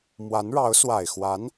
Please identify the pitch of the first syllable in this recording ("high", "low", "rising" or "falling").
rising